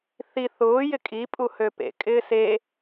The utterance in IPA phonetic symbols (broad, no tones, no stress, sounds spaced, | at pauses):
θ i θ ʊː j ɪ kʼ i pʼ u h ø p ḛ kʼ ɪː s e